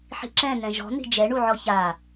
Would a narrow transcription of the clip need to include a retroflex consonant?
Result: yes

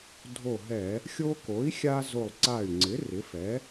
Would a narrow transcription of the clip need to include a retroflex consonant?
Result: no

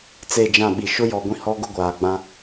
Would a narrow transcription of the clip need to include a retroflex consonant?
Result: no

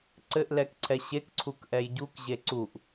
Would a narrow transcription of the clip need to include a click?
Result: yes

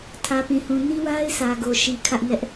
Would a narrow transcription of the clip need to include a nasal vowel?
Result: yes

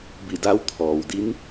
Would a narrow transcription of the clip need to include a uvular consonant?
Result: no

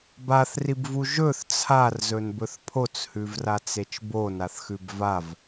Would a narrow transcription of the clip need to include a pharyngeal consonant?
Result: no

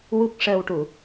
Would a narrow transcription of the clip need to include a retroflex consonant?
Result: yes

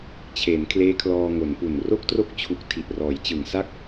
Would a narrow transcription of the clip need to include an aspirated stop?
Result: yes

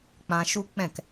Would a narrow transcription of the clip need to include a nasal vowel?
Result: yes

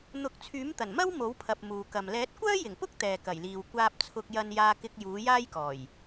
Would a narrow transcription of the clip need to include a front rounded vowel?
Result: yes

